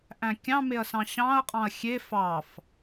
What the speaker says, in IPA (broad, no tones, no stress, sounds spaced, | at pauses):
ʔ æ̃ kʲ ɑ̃ m e ɐ̯ s ɑ̃ ɕ ɑ̃ ɐ̯ qʼ ɑ̃ ɐ̯ xʲ e f ɑ f